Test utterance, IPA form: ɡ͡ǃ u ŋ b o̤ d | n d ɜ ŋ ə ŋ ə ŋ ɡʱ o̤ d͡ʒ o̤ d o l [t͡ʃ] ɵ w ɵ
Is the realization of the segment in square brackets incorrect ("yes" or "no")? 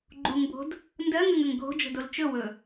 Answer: no